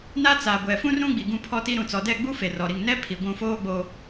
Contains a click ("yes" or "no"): no